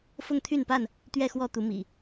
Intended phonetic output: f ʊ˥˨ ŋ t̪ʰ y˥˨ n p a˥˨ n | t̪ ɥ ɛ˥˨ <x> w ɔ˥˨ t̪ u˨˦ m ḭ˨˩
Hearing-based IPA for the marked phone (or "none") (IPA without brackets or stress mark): x